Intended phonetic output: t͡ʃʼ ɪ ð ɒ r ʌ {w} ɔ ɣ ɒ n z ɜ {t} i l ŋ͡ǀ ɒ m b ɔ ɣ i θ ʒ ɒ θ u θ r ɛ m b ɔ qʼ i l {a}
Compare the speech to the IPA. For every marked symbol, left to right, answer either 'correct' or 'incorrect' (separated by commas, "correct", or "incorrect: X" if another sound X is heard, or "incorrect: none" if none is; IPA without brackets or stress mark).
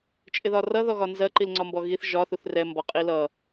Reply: incorrect: ð, incorrect: ǃ, incorrect: ʌ